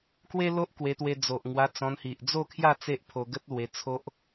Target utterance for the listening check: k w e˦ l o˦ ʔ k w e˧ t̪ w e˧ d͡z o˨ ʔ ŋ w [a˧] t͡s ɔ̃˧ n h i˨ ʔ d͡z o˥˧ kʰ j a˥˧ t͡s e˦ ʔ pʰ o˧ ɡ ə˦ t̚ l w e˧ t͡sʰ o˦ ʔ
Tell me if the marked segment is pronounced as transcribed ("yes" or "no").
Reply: yes